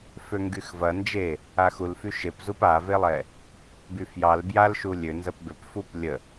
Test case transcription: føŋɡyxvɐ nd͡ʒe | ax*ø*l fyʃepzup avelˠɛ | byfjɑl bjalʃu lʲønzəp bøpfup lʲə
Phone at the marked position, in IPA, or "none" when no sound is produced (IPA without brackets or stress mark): u